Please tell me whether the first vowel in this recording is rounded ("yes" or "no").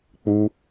yes